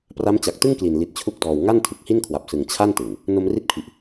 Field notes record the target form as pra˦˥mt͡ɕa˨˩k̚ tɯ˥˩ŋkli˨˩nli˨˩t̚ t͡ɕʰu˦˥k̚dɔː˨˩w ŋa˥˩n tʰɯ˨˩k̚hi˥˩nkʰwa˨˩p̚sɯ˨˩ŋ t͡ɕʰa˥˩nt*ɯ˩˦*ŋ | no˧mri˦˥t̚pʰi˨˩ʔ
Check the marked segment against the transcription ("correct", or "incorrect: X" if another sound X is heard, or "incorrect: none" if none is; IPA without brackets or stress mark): incorrect: ɯ˨˩